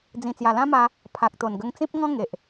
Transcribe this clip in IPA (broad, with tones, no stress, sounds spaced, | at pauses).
d͡z ĩ˨˩ t͡s j a˨˩ l ã˦ m a˧ | pʰ a˨ k̚ t̪ o˨˩ n ɡ ə˧ ŋ t͡s ĩ˦ p̚ ŋ ɔ̃˦ ŋ e˨ ʔ